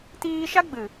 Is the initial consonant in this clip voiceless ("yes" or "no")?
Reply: yes